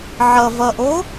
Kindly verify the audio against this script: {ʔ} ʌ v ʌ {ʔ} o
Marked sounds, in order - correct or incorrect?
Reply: incorrect: ʕ, correct

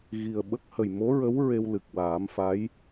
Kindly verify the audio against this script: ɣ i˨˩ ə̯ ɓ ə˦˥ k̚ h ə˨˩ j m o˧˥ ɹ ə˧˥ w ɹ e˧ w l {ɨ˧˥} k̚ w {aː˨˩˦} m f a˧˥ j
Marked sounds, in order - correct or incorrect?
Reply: incorrect: ɨ˨˩, correct

